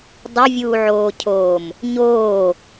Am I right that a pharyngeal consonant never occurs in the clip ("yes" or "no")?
no